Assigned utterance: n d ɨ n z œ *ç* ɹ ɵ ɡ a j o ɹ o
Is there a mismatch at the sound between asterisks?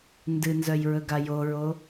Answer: yes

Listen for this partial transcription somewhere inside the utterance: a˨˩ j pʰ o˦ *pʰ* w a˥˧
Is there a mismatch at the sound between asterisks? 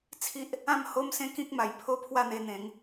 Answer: no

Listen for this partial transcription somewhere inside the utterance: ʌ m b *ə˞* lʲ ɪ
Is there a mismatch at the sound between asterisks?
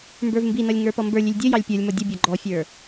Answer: no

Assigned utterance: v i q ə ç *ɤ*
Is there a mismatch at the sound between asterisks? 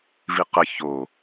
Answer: yes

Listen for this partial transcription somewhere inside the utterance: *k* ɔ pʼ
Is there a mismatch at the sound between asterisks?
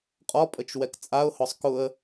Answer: yes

